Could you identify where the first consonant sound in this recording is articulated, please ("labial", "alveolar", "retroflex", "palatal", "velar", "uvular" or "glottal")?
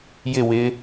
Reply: palatal